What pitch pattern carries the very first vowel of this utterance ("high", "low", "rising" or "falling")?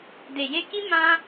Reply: low